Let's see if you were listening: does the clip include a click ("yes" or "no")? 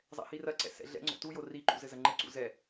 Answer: yes